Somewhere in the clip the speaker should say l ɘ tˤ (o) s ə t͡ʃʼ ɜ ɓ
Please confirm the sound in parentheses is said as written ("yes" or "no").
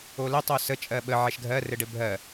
yes